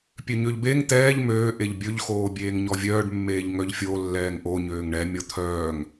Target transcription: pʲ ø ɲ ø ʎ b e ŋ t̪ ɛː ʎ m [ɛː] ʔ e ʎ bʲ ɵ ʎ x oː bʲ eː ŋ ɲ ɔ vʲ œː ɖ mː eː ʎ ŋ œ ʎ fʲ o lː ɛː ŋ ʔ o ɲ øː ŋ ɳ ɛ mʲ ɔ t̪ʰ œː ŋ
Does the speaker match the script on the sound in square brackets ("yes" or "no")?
no